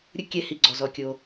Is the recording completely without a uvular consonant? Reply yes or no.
yes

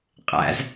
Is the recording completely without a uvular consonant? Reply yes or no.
no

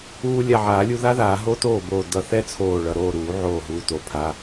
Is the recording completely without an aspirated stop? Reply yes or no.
no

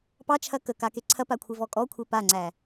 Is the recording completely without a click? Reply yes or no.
no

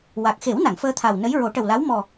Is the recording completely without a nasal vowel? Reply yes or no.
yes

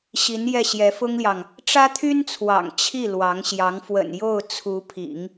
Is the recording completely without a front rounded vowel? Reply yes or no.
no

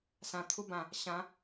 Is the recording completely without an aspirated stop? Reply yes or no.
no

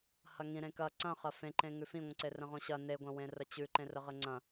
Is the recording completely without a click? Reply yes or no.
no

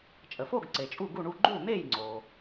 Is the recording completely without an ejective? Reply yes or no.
no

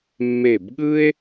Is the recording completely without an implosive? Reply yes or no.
no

